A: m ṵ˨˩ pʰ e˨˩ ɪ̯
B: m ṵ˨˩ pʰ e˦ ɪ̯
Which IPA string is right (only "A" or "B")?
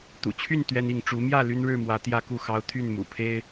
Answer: B